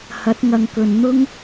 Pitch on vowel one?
rising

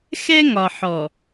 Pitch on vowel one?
high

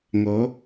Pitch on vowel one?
rising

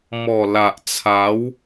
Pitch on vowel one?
low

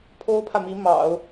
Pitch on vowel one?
high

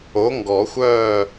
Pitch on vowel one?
rising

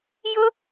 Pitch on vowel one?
high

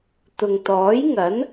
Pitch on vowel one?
low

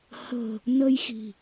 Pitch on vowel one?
low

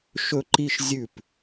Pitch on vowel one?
high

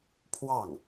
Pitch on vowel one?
falling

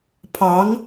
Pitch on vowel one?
rising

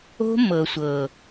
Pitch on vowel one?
high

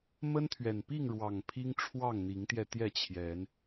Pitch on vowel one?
high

